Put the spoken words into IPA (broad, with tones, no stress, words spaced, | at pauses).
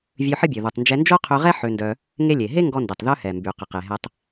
vʲø˧ħə˥bʲø˩ ðu˩tˤnd͡ʒɛ˧ nd͡ʒo˥qʰø˧ʁɛ˥ ħø˧ndœ˧ | ŋe˥lʲe˩ ɦe˥ ŋɡɔ˧ndɛ˩tˤ ðœ˧hɛ˩mby˩qə˩ qe˩ɦɛ˧tˤ